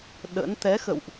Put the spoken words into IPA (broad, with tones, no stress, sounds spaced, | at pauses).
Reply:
ɗ ə̰˧˥ n t̪ ɛ˨˦ x ə̰˧˨ w ʔ